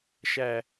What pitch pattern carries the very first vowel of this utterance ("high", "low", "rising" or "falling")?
falling